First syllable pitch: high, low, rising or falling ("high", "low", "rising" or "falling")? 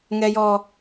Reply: high